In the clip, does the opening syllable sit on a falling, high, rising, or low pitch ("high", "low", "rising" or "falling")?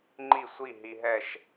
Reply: falling